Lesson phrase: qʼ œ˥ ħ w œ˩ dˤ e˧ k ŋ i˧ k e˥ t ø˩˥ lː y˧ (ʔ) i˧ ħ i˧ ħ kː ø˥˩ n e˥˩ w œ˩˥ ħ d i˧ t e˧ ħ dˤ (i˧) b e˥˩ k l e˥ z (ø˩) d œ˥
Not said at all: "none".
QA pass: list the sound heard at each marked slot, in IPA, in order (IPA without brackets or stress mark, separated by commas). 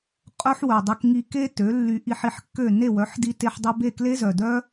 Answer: ʔ, i˧, œ˩